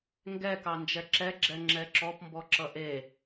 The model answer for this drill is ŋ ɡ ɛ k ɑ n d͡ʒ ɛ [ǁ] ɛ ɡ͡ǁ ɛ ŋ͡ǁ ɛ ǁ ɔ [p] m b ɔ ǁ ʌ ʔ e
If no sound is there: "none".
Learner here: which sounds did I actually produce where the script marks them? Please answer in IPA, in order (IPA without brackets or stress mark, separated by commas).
ǁ, p